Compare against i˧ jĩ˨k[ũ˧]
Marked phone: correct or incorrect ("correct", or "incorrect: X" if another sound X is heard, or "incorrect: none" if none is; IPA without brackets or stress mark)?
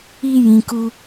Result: incorrect: u˧